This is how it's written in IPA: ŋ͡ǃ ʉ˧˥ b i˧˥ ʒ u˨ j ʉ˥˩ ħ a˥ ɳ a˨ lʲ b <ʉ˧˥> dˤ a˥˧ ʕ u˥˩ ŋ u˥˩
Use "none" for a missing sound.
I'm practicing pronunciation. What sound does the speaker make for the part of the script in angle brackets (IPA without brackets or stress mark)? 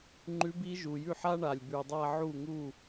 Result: ʉ˨